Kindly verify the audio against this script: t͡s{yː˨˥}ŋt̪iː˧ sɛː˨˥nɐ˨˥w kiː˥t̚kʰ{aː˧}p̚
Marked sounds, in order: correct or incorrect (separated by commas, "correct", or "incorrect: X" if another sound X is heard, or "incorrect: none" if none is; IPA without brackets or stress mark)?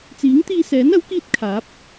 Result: incorrect: iː˨˥, incorrect: aː˨˥